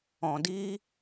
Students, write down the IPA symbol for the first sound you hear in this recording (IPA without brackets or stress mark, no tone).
ɔ̃